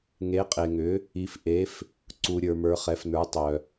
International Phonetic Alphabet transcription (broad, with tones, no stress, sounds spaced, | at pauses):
ŋ e˨˦ qʼ e˨ ŋ ʏ˨˦ | i˨ f ʔ e˨˦ f | ǀ u˨ ɾʲ ə˞˨ m ə˞˨˦ χ ɛ˨˦ f n ə˞˨˦ tˤ œ˨